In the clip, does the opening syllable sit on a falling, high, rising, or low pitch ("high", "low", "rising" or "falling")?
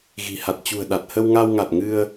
low